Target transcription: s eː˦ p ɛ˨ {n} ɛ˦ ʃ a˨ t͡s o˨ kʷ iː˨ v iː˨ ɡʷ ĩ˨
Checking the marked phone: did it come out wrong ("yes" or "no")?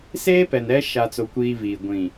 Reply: no